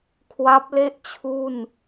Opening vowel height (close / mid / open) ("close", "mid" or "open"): open